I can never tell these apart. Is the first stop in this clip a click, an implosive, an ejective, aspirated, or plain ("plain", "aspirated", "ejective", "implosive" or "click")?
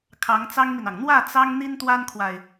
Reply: aspirated